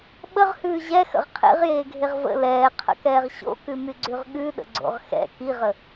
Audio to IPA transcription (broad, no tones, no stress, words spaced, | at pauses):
ɓəʁhʉː ʑɛxə̰ʁ qʰḛʁjeːɡʱeʁ və̰ lɛːqʰə̰kɛːʁ ɕo̰kʉmyɡ͡ǀʉʁ ɠʉɗə̰ɡ͡ǀo̰ʁ xɛ̰ kiʁə